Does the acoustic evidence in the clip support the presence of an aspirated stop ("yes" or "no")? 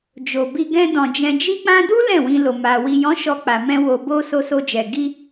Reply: no